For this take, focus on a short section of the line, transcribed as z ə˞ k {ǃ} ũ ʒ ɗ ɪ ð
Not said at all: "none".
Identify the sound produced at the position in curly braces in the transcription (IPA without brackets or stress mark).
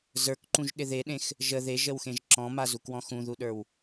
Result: ǃ